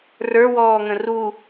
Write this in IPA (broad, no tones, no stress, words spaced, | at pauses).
rə˞wɔːŋə̃ ru